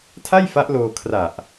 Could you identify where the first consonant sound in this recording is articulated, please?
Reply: alveolar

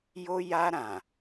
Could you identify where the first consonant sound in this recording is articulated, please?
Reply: palatal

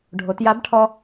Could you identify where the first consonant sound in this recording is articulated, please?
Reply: retroflex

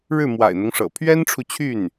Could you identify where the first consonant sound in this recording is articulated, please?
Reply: retroflex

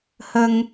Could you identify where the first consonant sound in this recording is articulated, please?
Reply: glottal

